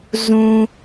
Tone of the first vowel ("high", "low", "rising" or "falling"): low